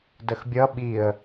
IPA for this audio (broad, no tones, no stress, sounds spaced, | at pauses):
d ə x bʲ ʌ ɓ i ə̯